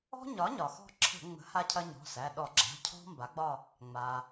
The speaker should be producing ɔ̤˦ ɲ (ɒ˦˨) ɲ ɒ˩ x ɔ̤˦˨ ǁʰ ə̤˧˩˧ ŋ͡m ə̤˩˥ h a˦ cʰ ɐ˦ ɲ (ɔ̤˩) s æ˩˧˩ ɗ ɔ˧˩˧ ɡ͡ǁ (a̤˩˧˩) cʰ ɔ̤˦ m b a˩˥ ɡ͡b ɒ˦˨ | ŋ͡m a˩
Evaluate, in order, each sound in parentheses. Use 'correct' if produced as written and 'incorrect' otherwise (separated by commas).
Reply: incorrect, incorrect, correct